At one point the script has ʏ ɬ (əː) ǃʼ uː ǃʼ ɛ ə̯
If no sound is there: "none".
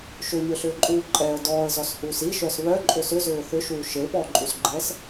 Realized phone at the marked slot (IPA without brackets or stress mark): ʏː